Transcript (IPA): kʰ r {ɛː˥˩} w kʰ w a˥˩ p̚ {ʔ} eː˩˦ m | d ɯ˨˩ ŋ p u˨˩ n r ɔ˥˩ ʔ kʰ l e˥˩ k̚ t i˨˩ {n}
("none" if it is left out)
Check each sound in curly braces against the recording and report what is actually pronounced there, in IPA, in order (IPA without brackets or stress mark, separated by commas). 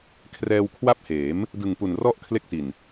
ɛː˧, h, n